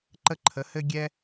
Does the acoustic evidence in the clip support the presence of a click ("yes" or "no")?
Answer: yes